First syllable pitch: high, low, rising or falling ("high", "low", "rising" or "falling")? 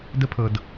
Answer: high